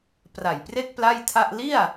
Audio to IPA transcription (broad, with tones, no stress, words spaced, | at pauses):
pra˨˩jpre˥˩k̚ pla˥˩jtʰa˥˩ʔ li˥˩a̯